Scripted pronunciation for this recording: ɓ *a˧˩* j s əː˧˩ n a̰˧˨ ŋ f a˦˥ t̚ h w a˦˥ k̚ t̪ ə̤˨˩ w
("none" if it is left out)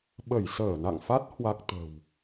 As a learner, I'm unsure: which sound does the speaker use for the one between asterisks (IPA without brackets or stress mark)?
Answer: ə˧˩